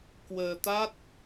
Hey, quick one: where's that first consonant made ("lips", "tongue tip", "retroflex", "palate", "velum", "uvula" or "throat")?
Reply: velum